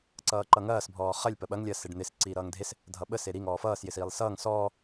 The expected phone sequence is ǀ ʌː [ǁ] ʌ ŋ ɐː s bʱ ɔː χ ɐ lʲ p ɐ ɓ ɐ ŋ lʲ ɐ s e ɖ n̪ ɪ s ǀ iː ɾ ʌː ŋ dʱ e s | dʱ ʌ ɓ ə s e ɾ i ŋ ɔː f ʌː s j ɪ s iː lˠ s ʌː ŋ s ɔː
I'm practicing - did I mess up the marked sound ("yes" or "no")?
yes